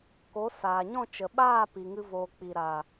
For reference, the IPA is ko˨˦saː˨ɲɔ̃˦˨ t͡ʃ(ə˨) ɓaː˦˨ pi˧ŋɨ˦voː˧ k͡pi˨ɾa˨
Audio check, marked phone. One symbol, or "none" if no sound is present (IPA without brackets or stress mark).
ə˨